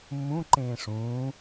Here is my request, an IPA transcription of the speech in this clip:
mː ũ ǃ ẽː ʂ ũː

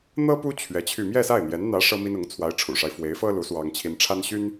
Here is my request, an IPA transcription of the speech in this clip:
n̪ ɤ˥ p u˥ t͡ɕʰ ɥ ɛ˧˥ t͡ɕʰ y˥˧ m j ɛ˥˧ s a˥˩ ɪ̯ n̪ j ɛ˧˥ n n̪ ä˧˥ ʂ ɤ˥ m i˥ n ʊ˧˥ ŋ t͡sʰ w a˧˥ ɪ̯ ʈ͡ʂʰ ṵ˨˩ ʂ a˦ ɪ̯ f w e˧˥ ɪ̯ f ɤ˥ l u˧˥ s w ɑ˥ ŋ t͡ɕʰ i˥ n ʈ͡ʂʰ a˥ n ɕ y˥ n

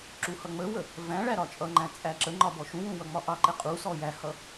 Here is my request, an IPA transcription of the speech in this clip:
ǁ u h ʌ ŋ͡m ə w ə | v æ̃ ɭ æ ɾ ɒ t͡ʃʼ ʌ ŋ͡ǃ æ̃ t͡sʼ æ ǁ ə ŋ͡ǃ ɒ b ɔ ʃ ũ w ũ w ʌ ŋ͡m ɒ ʔ ɑ ǃ ɛ qʼ u s ɔ j æ h ʌ

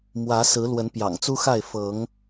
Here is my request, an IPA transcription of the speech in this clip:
m w ä˨˦ s ɹ̩˨˦ l w ə˨˦ n p j ɑ̰˨˩ ŋ t͡s u˦ x a˥˨ ɪ̯ f ɤ˨˦ ŋ

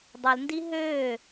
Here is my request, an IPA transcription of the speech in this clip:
dˤ ɵ l n d i ɦ øː

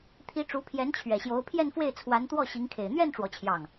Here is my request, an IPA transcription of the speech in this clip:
t̪ʰ i˧˥ ʈ͡ʂ u˧˥ pʰ j ɛ˧˥ n t͡ɕʰ ɥ ɛ˨˩ ɕ j o˧˥ ʊ̯ pʰ j ɛ˥˧ n f w e˥˩ ɪ̯ t͡sʰ w a˧˥ n t̪ w ɔ˥˩ ɕ i˧˥ ŋ kʰ e˨˩ ɪ̯ n̪ ɥ ɛ˥˧ n ʈ͡ʂ w ɔ˥˧ t͡ɕʰ j ɑ˥˩ ŋ

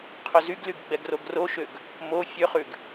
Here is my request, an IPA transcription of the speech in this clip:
qʰ ɵ z y ɡ l y ɡ ɡ͡b ɛ ɡ r o ɡ r o ʃ ø ɡ | m o fʲ ø χ ʉ ɡ

